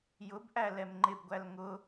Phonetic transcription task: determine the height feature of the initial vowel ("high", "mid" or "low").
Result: high